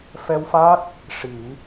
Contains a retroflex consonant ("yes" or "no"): yes